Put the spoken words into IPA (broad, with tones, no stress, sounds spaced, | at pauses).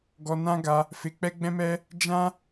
ɡ ɔ˧ n ã˦ ɡ a˧ | f e˧ k͡p ɛ˦ ɡ͡b ɛ̃˦ m ɛ˦ | d͡ʒ ã˦